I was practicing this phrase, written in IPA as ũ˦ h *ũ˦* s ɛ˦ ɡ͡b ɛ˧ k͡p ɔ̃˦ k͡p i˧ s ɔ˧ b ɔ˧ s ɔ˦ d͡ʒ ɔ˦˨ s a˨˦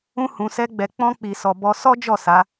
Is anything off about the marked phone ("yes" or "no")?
yes